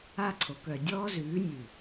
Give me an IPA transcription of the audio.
a˧ ǀʰ o˨ k œ˨ dʲ ɔː˦ z ʉː˨˦ nʲ ʉ˨

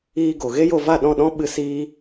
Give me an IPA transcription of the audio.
iː˦ ɡ o˨ ɣ e˦ j o˧ v a˦˨ ɗ ɔ̃˦˨ ɗ ɔ̃˦ ɓ ɨ˧ s iː˦

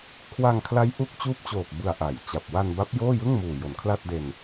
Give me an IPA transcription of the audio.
kʰ w a˧ ŋ kʰ l a˦˥ j ʔ u˦˥ k̚ t͡ɕ uː˦˥ p̚ t͡ɕ oː˨˩ k̚ b ɯ˨˩ a̯ ʔ a˩˦ j t͡ɕ a˨˩ p̚ w a˧ n b a˦˥ p̚ j oː˥˩ j ɯ˥˩ ŋ m uː˨˩ j o˩˦ n kʰ l a˥˩ t̚ d e˧ n

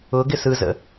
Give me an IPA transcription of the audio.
ʊ ɡ ɪ s ɯ z ə̰

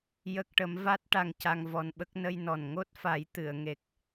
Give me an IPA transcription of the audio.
j ə˦˥ k̚ ʈ ə˧˥ m v a˦˥ t̚ ʈ a˧ ŋ c a˧ ŋ v ɔ˧ n ɓ ə˦˥ k̚ n ə˧ j n ɔ˨˩ n ŋ o˦˥ t̚ f a˨˩˦ j t̪ ɨ˨˩˨ ə̯ ŋ e˨˩ k̚

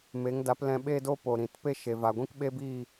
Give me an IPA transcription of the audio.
m e˨˦ ŋ d a˨˦ p l ɛ̃˧ ɓ e˦ d o˦ p o˨ ɾ ĩ˨ t p e˦ ʃ e˨ v a˨ ɡʷ ĩ˦ k ɓ e˦ b iː˦˨

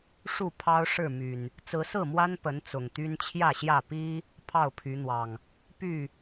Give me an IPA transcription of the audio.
ʂ u˥˨ pʰ ɑ˦ ʊ̯ ʂ ɻ̩˥˨ m y˨˩ n | t͡s ɹ̩˨˦ s ɹ̩˥˨ m w a˦ n p ə˨˦ n t͡s ʊ˨˩ ŋ t̪ y˦ n t͡ɕʰ j ä˥˨ ɕ j ä˥˨ p i˦ | pʰ ɑ˥˨ ʊ̯ pʰ y˨˦ n̪ w ɑ˨˩ ŋ | p y˥˨

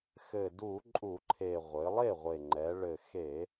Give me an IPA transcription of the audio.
x ɘ˨˩ d u˧˩˧ ǃʼ u˧˩˧ ǃʰ e˨˩ ʁʷ ɘ˩˧ lˠ e˥˩ ʁʷ e˨˩ ŋ͡ǃ ɛ˩˧ ɭ ɘ˨˩ x e˧˩˧

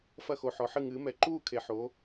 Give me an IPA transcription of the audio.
f ɐ˥˨ x o˧˩ ħ ɔ˨˦ ħ ɨ˥˨ ŋ ɨː˨˦ m ɛ˧˩ ǃ uː˥˨ kʰ e˨˦ ħ o˨˦

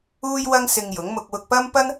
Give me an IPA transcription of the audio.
uː˥ j w ɐ˥ ŋ s ɪ˧ ŋ j ʊ˨˥ ŋ m ʊ˧ k̚ w ʊ˧ k̚ p ɐ˥ m p ɐ˥ n

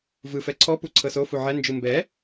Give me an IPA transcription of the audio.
v ɯ f ɛ ǀʰ ɔ p u ǀʰ ɤ s o f u ʕ ɛ n d͡ʒ ɯ m b ɛ

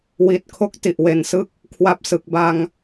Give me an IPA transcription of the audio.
w i˨˩ t̚ kʰ o˦˥ k̚ t i˨˩ ʔ w e˨˩ n s ɯ˥˩ k̚ | kʰ w a˥˩ p̚ s ɯ˨˩ k̚ b a˧ ŋ

